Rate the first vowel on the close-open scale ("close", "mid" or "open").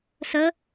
mid